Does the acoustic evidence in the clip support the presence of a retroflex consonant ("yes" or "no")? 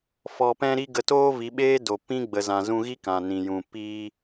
no